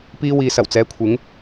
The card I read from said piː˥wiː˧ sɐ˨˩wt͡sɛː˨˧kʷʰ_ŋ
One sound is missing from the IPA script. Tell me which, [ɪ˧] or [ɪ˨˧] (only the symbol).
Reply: ɪ˨˧